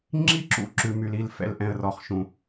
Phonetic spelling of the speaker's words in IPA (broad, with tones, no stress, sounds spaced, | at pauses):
ŋ͡ǁ i˦ ǁ ṵ˨ ǁ ʉ˨ m y˨ l i˦˨ l f ɛ̰˦ l ʔ ɛ̃˦ ə̯ r ɔ˦ χ ʃ ũ˦